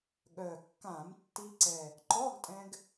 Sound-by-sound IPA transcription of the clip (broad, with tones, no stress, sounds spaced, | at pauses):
ɠ œ˨˩ kː ã˧˩˧ m tː i˧ ǀ ɛ˨˩ | ǃ ɔ˧˥˧ ɡ tʼ ɛ̃˧ ɡ